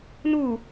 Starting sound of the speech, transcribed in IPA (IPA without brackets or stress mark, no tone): n